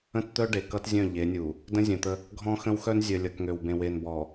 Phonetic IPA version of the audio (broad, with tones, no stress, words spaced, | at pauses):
ə̃˦tt̪œ˦ ɖe˨ kʌ˦tzʲœ̃˦˨ ʎe˨˦nʲu˨ | də̃˦zʲœ̃˨t̪ə˦ | ɡʱɔ̃˦xə̃˦wxœ˦n zʲœ˨ lʲʌ˨kŋø˨wbẽ˨we˨n bɔ˨